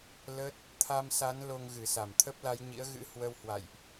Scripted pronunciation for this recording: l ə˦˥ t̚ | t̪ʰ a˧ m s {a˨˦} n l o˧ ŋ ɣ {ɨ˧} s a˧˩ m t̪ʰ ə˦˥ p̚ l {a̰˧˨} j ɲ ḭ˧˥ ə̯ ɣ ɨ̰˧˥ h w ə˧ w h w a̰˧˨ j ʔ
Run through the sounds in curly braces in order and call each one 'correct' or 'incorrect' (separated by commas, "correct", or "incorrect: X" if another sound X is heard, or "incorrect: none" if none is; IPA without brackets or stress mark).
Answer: correct, incorrect: ɨ˧˩, incorrect: a˨˦